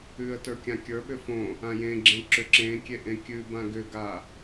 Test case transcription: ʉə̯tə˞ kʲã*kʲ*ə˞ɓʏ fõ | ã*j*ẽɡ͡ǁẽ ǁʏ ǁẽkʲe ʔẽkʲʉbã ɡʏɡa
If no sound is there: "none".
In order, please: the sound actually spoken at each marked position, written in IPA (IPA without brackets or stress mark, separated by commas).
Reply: kʲ, j